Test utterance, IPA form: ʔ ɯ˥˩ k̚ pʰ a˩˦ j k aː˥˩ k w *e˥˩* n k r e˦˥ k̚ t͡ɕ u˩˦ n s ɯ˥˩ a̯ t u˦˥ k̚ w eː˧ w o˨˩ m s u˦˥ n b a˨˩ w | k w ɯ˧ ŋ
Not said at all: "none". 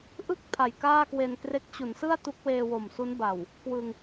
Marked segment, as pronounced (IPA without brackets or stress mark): e˧